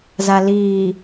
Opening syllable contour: low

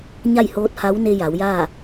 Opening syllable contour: falling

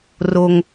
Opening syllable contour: high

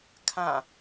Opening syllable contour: falling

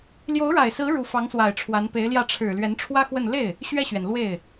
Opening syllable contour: rising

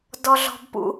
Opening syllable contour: high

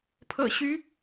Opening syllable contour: low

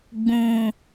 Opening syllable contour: low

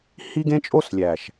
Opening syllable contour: high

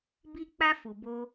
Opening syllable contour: high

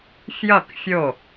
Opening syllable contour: falling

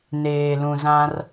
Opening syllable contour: low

